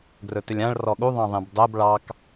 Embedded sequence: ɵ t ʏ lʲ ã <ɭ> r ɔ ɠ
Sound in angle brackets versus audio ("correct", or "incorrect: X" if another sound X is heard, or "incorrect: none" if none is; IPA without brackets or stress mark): correct